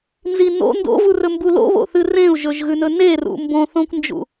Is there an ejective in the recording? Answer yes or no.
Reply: no